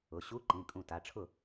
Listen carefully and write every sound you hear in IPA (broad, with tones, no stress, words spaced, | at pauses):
ʊ˩˧˩ ɕu˧˥˧ ǃĩ˩˧˩kʼũ˧˩ta˩˧˩ʈ͡ʂʰʊ˥˩